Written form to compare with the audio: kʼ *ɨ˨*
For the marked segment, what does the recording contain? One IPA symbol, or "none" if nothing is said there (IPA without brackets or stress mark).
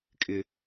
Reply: ɪ˨